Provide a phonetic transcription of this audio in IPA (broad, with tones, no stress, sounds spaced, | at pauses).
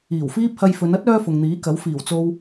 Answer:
iː˨˩ w f iː˥ p̚ h ɐ˧ j f ɵ˨˧ n ɐ˥ t̚ œː˥ f ʊ˨ ŋ n̪ iː˨˥ k ɐ˨˥ w f iː˨˩ w t͡s o˧ w